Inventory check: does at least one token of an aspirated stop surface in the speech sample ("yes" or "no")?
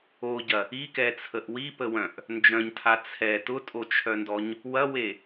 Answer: yes